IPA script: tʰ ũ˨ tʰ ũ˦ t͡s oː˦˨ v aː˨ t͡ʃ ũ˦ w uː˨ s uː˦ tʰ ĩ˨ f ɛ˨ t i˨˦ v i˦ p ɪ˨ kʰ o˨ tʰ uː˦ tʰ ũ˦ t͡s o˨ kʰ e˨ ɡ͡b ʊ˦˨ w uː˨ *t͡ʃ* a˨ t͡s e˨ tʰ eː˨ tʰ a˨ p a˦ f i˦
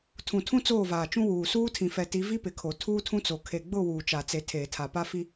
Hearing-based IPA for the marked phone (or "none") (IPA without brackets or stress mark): t͡ʃ